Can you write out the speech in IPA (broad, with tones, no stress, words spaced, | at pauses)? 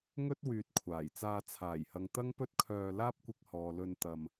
ŋɵ˥t̚ wyː˨t̚kʷʰaː˨˩jt͡saː˧ t͡sʰaː˨˩jhɐ˨ŋ t̪ɐ˥ŋpɵ˥t̚kʰœː˧ laː˥p̚kʷɪ˧k̚hɔː˨lɵ˧n t̪ɐ˧m